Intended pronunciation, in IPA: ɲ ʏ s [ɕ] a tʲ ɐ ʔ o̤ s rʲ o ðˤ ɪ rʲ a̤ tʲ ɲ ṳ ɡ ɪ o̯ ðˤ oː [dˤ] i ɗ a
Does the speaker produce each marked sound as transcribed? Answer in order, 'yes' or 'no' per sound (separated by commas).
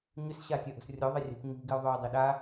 yes, yes